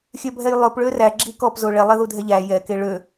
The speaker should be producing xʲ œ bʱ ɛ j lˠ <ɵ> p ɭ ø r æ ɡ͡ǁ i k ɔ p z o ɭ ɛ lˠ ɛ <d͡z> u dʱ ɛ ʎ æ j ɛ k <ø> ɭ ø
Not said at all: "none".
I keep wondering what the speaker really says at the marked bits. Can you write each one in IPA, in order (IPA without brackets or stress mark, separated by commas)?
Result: ɵ, ð, e